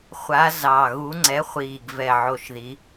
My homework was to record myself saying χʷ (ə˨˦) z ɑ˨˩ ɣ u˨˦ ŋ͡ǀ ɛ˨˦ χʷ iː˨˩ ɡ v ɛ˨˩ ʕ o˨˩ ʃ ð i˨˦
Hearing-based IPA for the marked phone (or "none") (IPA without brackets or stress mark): a˨˦